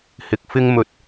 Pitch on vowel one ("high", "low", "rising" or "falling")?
rising